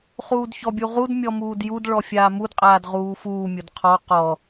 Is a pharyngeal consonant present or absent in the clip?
absent